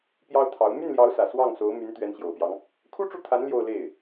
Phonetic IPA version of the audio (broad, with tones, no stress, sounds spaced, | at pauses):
p j ɑ˥ ʊ̯ t̪ʰ ɑ˧˥ ʊ̯ m y˥˩ n l j ɑ˧˥ ʊ̯ s ä˨˩ s w ɑ˥˩ ŋ s o˧˥ ʊ̯ m y˧˥ n t̪ ɥ ɛ˧˥ n ɕ j o˨˩ ʊ̯ p j ɑ˦ ŋ | kʰ u˥ ʈ͡ʂ u˥˩ t̪ʰ a˧˥ n l j o˥˧ ʊ̯ l e˥˩ ɪ̯